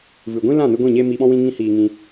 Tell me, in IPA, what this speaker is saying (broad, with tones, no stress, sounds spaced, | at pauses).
v ɨ˨ ɡʷ ĩ˦ l ã˦˨ n ɨ˧ ɡʷ ĩ˦˨ ɲ eː˦ m iː˧ ɓ ɔ̃˦ w ĩ˦ ŋ ĩ˦ h iː˧ ŋ ĩ˧